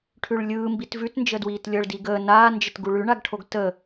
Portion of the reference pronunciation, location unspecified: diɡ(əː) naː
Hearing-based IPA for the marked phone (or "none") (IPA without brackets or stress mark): əː